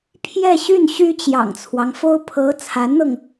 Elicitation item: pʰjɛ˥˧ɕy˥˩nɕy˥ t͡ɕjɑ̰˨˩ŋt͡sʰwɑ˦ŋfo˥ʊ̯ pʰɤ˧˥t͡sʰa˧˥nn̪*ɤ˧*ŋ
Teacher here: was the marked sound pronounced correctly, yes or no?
yes